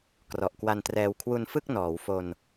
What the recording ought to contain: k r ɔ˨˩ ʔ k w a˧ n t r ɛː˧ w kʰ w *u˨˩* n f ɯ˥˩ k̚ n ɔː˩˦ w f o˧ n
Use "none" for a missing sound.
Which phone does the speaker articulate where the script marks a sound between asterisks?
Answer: u˧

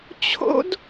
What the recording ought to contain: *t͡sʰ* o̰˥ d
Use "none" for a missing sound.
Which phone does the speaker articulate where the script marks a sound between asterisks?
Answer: t͡ɕʰ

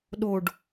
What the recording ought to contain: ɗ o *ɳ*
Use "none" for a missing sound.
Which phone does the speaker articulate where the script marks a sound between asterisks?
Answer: ɖ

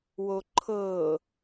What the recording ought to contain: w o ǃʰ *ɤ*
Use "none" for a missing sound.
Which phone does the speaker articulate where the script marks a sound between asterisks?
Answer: ɤ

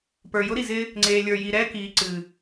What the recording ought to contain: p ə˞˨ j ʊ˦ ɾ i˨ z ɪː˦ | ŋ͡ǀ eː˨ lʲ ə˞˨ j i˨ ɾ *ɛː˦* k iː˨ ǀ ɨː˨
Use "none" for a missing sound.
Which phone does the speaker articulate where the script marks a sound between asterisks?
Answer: ɛː˦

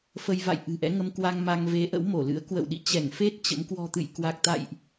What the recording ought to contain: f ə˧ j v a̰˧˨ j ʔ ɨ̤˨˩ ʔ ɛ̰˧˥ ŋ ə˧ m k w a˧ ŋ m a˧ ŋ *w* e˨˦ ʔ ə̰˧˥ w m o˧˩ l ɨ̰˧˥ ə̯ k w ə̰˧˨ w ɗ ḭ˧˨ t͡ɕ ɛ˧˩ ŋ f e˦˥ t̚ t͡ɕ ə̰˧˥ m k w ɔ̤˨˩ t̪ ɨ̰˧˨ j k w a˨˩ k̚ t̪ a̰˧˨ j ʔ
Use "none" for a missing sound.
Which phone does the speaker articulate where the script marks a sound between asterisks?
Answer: v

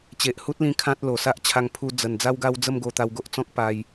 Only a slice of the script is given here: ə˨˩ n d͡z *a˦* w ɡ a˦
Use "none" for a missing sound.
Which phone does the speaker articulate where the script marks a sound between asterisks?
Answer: a˦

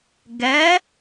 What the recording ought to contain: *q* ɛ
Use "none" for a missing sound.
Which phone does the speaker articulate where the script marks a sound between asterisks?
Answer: ɡ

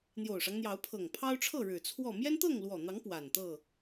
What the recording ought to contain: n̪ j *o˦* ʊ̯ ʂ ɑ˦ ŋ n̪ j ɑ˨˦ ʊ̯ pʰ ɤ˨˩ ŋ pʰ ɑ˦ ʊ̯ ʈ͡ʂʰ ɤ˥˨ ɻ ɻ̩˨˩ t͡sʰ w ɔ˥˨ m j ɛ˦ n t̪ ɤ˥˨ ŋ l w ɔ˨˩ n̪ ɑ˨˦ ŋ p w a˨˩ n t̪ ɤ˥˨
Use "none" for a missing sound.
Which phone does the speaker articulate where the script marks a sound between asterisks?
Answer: o˨˩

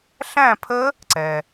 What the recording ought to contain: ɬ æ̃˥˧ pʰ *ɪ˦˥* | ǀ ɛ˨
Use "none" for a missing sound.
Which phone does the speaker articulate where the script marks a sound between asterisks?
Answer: ə˦˥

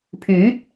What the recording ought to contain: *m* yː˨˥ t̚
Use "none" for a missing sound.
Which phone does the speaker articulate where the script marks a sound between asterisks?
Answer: pʰ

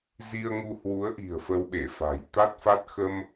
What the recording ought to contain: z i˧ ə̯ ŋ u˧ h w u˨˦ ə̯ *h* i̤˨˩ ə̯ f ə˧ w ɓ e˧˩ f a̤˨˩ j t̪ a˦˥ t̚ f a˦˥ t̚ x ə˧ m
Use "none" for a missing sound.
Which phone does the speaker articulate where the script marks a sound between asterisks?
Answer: ʔ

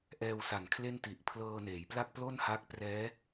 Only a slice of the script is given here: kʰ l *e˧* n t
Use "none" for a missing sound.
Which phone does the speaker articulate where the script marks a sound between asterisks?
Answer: e˥˩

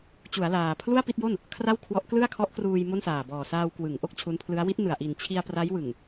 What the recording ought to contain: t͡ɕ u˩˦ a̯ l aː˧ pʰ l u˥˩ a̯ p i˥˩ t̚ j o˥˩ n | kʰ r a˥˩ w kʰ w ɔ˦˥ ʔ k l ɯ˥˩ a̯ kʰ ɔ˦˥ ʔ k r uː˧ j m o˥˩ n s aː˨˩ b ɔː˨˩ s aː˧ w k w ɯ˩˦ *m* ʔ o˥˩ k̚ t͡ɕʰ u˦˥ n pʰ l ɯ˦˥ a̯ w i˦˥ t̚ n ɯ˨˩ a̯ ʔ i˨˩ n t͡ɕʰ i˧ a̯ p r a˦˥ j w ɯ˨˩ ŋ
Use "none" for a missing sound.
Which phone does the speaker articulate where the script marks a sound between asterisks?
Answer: ŋ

